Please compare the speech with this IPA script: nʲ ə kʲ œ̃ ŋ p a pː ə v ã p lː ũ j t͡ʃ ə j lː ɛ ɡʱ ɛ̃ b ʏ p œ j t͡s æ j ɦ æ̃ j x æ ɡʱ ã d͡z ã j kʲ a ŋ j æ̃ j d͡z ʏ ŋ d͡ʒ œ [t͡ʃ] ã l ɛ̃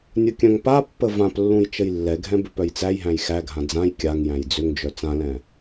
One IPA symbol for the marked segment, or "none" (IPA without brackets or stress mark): t͡s